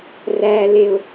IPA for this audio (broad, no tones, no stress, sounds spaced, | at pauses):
r æ l e ʊ̯